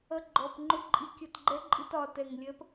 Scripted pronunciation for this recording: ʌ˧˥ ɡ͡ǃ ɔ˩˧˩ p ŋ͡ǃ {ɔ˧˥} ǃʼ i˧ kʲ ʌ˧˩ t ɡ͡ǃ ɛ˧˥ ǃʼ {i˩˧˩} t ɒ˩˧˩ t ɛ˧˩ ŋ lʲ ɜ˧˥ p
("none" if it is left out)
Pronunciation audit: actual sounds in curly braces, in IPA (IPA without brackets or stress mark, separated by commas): ʊ˧˥, i˧